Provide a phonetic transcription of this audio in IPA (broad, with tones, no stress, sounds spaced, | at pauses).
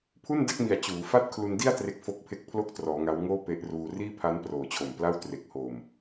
pʰ u˥˩ n d a˥˩ k̚ m i˨˩ a̯ t͡ɕ uː˩˦ f a˥˩ t̚ kʰ l u˧ n d i˥˩ a̯ t r e˦˥ k̚ f o˦˥ k̚ pʰ e˦˥ k̚ pʰ l o˥˩ k̚ t r ɔː˩˦ ŋ a˦˥ w ŋ oː˥˩ p e˦˥ ʔ r uː˧ r iː˥˩ pʰ a˦˥ n p r oː˨˩ t͡ɕʰ o˨˩ m p l a˥˩ w t r e˨˩ k̚ h oː˨˩ m